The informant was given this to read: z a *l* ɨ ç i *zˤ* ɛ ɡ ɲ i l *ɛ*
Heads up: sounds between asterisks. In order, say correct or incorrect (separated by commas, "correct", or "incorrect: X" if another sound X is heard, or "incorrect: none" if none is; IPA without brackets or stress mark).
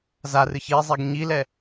incorrect: r, correct, correct